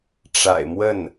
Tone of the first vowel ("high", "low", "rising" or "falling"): low